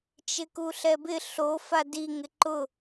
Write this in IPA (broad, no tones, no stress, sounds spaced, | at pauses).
t͡ʃ ɪ k u ɬ ɛ b ɪ ɬ o f a d i ŋ ɪ ǃ ʊ